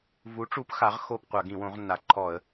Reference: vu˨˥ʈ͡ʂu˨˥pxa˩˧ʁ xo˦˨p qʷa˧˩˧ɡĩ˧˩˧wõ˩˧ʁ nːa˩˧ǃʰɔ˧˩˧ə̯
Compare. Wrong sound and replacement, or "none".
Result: none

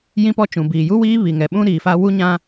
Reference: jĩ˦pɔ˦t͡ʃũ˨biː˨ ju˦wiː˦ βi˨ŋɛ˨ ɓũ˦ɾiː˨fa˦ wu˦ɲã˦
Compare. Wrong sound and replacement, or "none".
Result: none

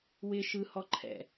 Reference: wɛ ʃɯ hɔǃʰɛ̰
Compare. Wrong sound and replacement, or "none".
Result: ɛ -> ɪ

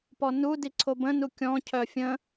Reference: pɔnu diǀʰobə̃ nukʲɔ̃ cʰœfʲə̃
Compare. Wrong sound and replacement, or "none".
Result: none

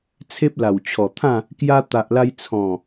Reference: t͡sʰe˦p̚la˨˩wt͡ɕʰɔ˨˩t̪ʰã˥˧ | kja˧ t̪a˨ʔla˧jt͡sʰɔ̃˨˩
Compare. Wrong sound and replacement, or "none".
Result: none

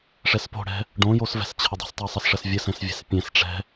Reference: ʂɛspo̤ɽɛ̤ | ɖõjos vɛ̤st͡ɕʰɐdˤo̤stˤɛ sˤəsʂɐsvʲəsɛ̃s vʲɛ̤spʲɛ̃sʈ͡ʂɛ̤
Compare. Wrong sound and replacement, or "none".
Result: none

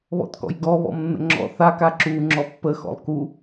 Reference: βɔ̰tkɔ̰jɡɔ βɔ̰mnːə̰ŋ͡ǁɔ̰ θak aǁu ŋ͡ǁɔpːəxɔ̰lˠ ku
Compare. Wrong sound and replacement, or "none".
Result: none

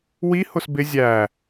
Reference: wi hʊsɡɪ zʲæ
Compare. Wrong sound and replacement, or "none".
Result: ɡ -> b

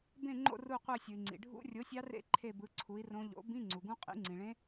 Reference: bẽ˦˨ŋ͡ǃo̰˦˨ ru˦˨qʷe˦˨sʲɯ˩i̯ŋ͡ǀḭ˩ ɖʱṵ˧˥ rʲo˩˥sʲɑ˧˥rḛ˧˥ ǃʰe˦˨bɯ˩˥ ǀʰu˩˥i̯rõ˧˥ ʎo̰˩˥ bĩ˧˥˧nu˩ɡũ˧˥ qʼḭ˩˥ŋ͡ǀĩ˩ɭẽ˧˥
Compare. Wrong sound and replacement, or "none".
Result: n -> ŋ͡ǀ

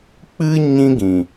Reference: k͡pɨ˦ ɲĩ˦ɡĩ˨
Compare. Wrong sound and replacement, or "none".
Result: none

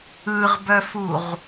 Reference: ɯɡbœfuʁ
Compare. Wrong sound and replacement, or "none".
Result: ɡ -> ʁ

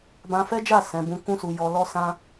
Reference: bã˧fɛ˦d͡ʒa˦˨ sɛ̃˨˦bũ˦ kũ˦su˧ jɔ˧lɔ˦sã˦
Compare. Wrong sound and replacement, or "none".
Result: none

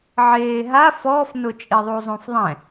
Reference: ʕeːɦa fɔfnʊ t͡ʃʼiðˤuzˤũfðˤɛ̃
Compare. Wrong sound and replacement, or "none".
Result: none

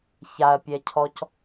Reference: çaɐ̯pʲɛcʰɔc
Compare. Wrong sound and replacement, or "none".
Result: none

